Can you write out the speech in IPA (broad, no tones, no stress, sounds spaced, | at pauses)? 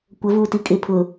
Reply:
kʷ ə v u t i kʼ ɪ pʰ ʊ